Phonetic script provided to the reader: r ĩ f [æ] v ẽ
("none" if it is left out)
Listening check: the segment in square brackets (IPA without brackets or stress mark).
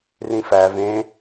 æ